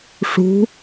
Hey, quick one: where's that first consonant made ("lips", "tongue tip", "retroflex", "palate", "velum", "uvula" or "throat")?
retroflex